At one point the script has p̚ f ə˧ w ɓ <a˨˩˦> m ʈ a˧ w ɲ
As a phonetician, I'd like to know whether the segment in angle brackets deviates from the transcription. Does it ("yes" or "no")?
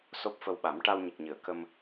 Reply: no